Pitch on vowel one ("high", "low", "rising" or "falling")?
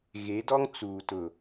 rising